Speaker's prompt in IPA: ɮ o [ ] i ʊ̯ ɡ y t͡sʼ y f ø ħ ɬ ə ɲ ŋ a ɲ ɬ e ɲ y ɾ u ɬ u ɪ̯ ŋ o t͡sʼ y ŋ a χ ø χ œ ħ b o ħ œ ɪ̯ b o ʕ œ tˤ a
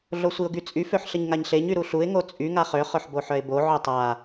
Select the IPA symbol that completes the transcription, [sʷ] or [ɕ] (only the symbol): sʷ